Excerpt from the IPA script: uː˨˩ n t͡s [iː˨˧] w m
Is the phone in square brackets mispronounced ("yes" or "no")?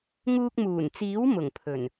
yes